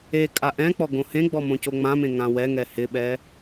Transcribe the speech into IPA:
ekʼa ʔɛ̃k͡pɔ ɡõhẽɡ͡bɔ mõcoŋ͡mãmẽ ŋãwɛŋɛ hɪɓɛ

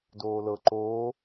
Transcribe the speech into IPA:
doːlɤ ǃoː

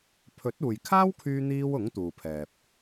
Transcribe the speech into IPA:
pʰɵ˨˥t̚uː˨jkʰaː˥w kʰyː˥n̪iː˥w ʊ˨˥ŋt̪uː˨pʰɛː˨p̚

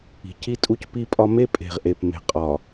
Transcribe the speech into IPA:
i̤˨ci˦ tʼu˦cpi˦pʼɒ˦ me˦ pʼe̤˨ʁʔe˨p me̤˨qʼɒ˨

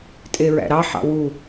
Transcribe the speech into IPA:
tʼeɹæ̰ɾɑ ħɑ̰wu

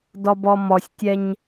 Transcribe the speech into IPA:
dɔbɔmɔsʲtʲɛɲ

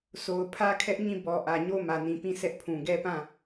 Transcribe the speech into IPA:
so˨ʊ̯ pʰä˦kʰɛ˦ʔɲĩ˦˨ bɔ˨ ʔä˨ɲo˦mä˨nĩ˨ pĩ˦˨sɛ˦ʔpʰũ˨ ɡɛ˦pã˦˨

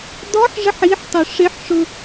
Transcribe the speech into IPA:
dɔħʐəħ iħtˤʊ ʂɪħʂʊ

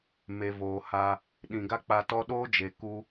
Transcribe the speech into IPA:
me˨voː˨ha˧ | ɗĩ˨ɡa˦k͡pa˧tɔ˦ ɗoː˦d͡ʒe˨ ku˦

